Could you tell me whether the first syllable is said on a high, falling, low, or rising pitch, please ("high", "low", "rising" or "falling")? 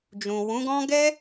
low